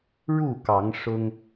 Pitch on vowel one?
falling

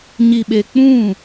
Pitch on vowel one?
low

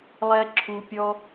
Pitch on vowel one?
high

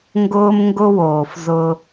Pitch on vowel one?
high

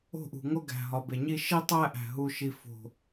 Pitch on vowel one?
falling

